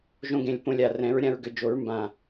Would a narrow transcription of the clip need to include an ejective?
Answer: no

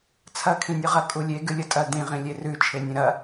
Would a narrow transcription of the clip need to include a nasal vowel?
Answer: yes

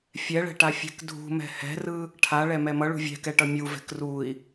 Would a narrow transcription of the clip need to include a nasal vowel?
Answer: no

